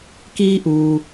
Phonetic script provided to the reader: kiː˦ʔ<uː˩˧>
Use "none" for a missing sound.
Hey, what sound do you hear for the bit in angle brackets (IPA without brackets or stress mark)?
uː˩